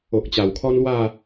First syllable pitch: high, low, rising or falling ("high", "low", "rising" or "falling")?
low